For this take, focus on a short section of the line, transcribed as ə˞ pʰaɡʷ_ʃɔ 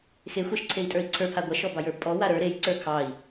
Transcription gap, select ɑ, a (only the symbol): a